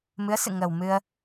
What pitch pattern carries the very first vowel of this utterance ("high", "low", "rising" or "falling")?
rising